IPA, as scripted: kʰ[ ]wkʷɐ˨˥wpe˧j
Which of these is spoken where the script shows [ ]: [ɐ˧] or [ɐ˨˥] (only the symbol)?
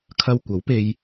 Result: ɐ˧